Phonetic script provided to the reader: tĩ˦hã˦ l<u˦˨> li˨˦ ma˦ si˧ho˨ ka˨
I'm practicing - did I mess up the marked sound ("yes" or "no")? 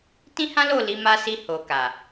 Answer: yes